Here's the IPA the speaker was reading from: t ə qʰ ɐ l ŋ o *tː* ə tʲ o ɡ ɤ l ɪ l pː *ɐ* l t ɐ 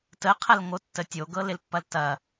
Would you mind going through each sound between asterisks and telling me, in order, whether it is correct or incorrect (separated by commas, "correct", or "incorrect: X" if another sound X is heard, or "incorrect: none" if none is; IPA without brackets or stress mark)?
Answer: correct, correct